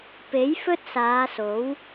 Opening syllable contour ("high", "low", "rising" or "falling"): rising